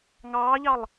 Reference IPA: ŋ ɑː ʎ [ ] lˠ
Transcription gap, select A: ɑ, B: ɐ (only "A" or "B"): A